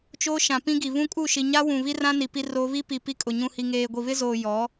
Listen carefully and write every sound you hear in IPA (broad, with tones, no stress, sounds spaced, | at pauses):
t͡ʃ o˦ ʃ ã˨ p ĩ˦ ɡ i˨ β ũ˦ kʼ u˦˨ ʃ i˨ ɲ a˦ w ũ˨ β i˦ r ã˦ n i˨ p i˦ r oː˦ β i˦ p i˨ p i˦ kʼ ʊ˨ ɲ ũ˨ h i˨ ŋ eː˨ ɡʷ i˨ β ɪ˦ z oː˨ j ɔ˨˦